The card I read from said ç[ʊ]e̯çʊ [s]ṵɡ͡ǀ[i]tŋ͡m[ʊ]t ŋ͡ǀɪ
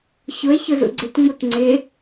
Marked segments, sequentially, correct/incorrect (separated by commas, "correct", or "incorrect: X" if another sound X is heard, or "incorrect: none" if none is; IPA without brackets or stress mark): correct, incorrect: z, incorrect: ɪ, incorrect: u